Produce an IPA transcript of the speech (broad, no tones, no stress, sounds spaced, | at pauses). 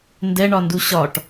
n d ɛ ɳ ɒ n d u ɕ ɒ ʈ